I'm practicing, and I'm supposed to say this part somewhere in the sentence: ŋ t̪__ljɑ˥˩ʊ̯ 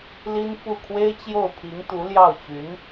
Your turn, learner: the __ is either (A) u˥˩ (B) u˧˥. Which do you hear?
B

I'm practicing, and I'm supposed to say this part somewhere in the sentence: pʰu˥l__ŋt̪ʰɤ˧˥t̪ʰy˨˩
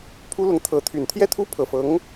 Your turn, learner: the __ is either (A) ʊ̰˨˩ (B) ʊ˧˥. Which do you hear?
B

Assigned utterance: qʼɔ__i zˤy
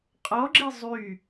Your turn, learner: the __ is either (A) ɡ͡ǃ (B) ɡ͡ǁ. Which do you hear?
B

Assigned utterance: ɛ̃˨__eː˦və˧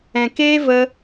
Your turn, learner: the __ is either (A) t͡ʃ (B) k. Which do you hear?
B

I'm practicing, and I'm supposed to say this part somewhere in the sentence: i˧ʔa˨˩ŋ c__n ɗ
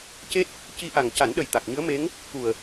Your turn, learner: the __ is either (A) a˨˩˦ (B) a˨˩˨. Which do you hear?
A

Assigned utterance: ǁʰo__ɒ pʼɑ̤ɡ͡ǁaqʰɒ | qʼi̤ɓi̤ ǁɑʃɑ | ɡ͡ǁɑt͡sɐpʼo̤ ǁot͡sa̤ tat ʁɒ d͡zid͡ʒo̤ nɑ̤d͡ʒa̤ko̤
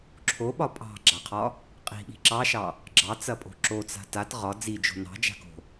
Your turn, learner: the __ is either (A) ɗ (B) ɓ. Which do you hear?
B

